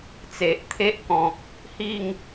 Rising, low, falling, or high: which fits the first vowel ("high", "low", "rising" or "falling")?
low